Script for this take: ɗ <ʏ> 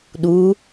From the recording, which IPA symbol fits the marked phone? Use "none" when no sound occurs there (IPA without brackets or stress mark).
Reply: u